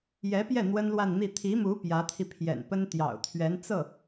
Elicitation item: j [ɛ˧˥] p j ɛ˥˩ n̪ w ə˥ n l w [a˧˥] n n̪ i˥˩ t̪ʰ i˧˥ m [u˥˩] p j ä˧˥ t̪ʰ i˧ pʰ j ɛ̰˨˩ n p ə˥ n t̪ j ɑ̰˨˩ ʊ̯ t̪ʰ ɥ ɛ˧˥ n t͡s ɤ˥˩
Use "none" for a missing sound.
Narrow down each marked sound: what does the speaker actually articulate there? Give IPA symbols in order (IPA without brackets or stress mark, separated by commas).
ɛ˧˥, a˥˧, u˧˥